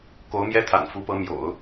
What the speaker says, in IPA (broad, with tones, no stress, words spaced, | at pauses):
ko˧˥ʊ̯mjɛ˥t̪ʰa̰˨˩n fu˧˥pɤ˧˥ mjo̰˨˩˦ʊ̯